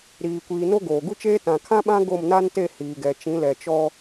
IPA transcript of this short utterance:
ɾ iː˨ kʷ iː˨ n o˦ ɡ oː˨ ɡ u˦ t͡ʃ eː˦ t ã˨ kʰ ã˦ ɓ ã˦ ɡ o˦˨ m n a˦ n t e˦˨ h iː˨ ɡ ɛ˨ t͡ʃ ĩ˨˦ l ɛ˨ t͡ʃ ɔ˦

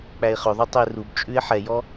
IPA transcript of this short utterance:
k͡p æ ɪ̯ χ ɵ ðˤ u tˤ ɵ ɪ̯ r u b t͡ʃʼ ʉ ɪ̯ ħ ɛ j ɔ

